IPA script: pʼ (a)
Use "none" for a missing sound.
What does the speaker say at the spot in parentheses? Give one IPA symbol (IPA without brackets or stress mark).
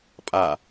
a